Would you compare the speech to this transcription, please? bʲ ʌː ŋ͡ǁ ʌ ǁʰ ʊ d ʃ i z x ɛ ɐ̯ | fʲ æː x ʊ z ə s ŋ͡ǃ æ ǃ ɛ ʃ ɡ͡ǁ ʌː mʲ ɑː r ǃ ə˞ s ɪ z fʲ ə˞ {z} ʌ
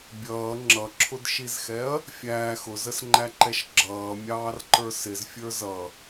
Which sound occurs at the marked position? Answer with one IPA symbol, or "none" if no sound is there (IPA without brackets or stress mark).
z